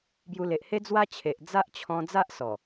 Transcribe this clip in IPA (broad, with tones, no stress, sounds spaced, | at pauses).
b j u˧ l e˨ ʔ h e˦ d͡z w a˦ t͡ɕʰ e˨ ʔ d͡z a˦ ʔ t͡ɕʰ ɔ̃˧ d͡z a˦ ʔ s ɔ˨˩